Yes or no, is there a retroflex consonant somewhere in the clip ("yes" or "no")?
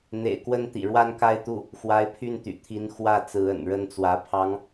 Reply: yes